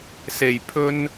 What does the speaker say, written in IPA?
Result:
s e˨˩ j pʰ ɵ˧ n

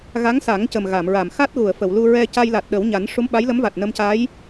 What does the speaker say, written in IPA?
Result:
ɣ a˧˥ ŋ s a˨˩˦ ŋ c ə˨˩ m ɣ a˨˩˨ m ɹ a˨˩˨ m x a˦˥ t̚ ɣ u˨˩˨ ə̯ f ə˨˩˨ w l u˧ ɹ ɛ˧ c a˧ j l a˨˩ t̚ ɗ ə˨˩˦ w ɲ a˨˩˦ n ʂ u˧˥ m ɓ a˧˥ j l ə˧˥ m v a˨˩ t̚ n ə˧ m c a˧˥ j

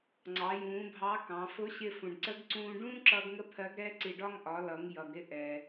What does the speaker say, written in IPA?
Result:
ŋ͡ǀ ɑ˩˧ j ũː˩˧ bʱ ɑ˧˥ k ɑ̃˩˧ f ʊ˧˥ ɕ ɪ˧ f ũ˩ ɖ ǀ ə˧˥ ɡ ǀ ũː˧ ɖ ũː˥ ǁ ʌː˧ ɡ ŋ ə˧˥ pʰ ɜ˧˥ ɡ ɾ ɛː˥ ǀ i˧ ɖ ɒ˥ ŋ ʔ ɒ˩˧ l ʌ˩˧ ŋ j ʌ˩ ɡ ɾ ɪ˧ ʔ ɛː˩

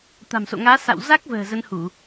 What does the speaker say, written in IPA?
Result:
t̪ a̤˨˩ m s o̰˧˨ ŋ aː˨˦ s a̰˧˨ w z a˦˥ k̚ v ə̤ː˨˩ z ə˨˦ n h u˧˩˨

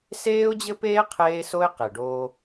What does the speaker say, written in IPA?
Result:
s eː˦ ʊ̯ d͡ʑ ɘ˦ p eː˦ qʰ eː˦ s o˦ ɪ̯ q e˨ ɖ oː˦

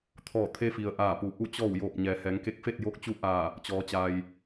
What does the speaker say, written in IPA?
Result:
t̪ʰ ɔː˧˩ t̪ʰ e˧ f i˩ ə̯ ʔ aː˧˩ p u˩˧ ʔ u˧˩ t͡ɕ ɔː˧˩ w j oː˧˩ p̚ ɲ ɛː˩˧ h ɛː˩˧ ŋ k e˧˥ k̚ f e˥˨ t̚ j o˧˥ k̚ t͡ɕ u˧˥ ʔ aː˧˩ | t͡ɕ ɔː˩˧ t͡ɕ a˩ j

